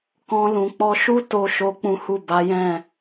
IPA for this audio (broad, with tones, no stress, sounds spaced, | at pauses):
k ɔ̃˧ l ũ˨ k͡p ɔ˧ ʃ u˦ t o˦ ʃ o˦ k͡p ũ˦ h u˦˨ b a˨˦ j ɛ̃˦˨